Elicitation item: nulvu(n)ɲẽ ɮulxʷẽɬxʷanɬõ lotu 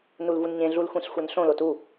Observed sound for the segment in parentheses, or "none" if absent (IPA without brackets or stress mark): n